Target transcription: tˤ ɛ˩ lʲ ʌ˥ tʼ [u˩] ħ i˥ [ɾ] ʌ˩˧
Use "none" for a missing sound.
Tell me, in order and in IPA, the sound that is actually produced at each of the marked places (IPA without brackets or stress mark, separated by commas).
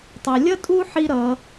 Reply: u˥, ɾ